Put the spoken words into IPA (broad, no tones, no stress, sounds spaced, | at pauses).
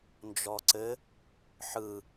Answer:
n d͡ʒ ɔ ǀ ɘ | ħ ɯ